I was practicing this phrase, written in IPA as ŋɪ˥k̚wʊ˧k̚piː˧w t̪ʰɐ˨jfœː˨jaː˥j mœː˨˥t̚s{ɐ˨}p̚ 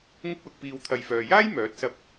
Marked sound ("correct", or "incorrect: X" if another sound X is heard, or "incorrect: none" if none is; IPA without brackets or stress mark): incorrect: ɐ˧